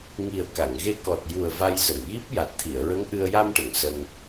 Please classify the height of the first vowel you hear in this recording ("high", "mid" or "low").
high